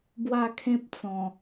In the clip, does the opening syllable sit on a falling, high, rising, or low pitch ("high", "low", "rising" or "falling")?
falling